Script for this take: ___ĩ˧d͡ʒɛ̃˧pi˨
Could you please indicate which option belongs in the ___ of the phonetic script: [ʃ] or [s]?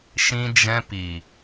ʃ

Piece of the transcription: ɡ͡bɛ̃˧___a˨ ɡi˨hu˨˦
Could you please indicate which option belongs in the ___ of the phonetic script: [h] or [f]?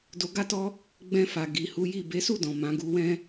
f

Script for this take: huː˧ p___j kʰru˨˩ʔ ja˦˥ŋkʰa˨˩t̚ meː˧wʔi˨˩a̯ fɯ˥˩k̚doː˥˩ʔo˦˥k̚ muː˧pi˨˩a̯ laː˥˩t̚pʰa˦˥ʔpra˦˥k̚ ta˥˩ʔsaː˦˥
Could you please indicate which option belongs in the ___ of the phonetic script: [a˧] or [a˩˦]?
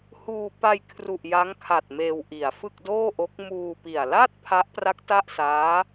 a˧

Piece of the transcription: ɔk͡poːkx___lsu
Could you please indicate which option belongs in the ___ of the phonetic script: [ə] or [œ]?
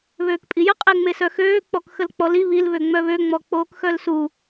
œ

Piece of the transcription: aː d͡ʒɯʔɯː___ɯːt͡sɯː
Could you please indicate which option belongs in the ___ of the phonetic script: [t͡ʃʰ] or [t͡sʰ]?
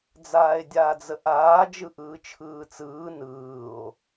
t͡ʃʰ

